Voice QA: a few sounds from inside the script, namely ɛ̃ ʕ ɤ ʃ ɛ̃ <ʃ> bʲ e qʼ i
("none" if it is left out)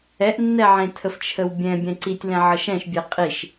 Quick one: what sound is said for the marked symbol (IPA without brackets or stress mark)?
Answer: ʃ